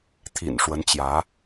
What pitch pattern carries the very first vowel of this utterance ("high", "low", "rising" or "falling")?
low